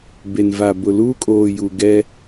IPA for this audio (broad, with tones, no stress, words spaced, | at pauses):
be˨nva˨ bʊ˨ luː˦kʼoː˨ju˨ɡɛ˦